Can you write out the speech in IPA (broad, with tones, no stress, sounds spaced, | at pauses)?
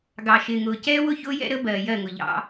ɡ ɑ˨ ʃ ɪː˨ ŋ ʊː˨ c ɛː˦ w ʊ˦˨ ç ʊː˦ j ɛ̰˦ ɾ ə˦ b ɜː˨ j ɜ˦˨ ŋ ʊ˨ ʎ ɑ̰˦